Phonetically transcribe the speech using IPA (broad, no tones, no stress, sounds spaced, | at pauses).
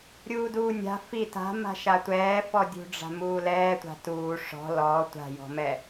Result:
ɾʲ uː d uː nʲ a̤ f i t a̤ m a̤ ʃ a tʷ ɛː f ɔ dʲ ṳ ɖ͡ʐ a̤ m uː l ɛː tʷ a̤ t uː ʂ ɔ̤ l ɔ tʷ a̤ j ɔ̤ m ɛ